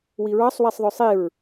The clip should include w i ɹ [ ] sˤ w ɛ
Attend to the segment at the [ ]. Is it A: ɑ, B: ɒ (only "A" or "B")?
A